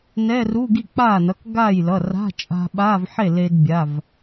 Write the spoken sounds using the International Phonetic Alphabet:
nɛ˧˥˧ruː˧˥˧ɡi˥˩ k͡paː˥˩nʌ˩˧˩k ɡaː˥˩jlʌ˩˧˩ra̤˧˥˧ t͡ʃʼa̤˧ɓa˧˥˧vħe˥˩ le˧dbʲa˩˧˩v

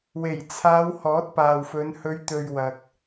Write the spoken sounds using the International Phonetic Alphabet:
we˨˩jt͡sʰaː˨˧w hɔː˨˥t̚paː˨wfɵ˨˧n hɵ˨˧ɥt̪ɵ˨ɥ wɐ˨k̚

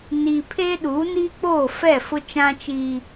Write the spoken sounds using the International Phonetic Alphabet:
ni˨pʰe˦ ɗuː˨˦niː˦k͡poː˦˨ fɛ˦˨fʊ˦t͡ʃã˦t͡ʃiː˦

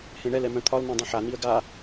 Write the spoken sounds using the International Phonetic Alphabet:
hẽɳɛl ɛmœ̃t̪ʰɒl nɛ̃dˤẽħa niə̯ɡa

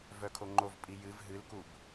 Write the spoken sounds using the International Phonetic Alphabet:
vœkʰoŋ͡ǃovpʼi jɨv ɦɨlkub

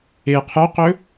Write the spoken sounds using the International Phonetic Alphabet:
e qʰœqɵ

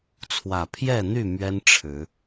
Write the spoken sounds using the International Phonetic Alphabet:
t͡sʰwä˨˩pʰjɛ˥˨n̪y˥˨ mɥɛ˦n ʈ͡ʂʰɻ̩˨˦

